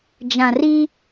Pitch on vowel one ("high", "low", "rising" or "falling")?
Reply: low